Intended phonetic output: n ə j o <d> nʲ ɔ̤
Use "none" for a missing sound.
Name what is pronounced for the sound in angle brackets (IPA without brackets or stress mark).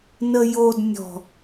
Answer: d